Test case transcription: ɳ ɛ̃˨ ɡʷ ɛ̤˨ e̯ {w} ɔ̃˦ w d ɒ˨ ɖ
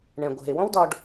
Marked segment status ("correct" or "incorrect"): correct